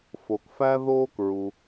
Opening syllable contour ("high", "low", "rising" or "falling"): low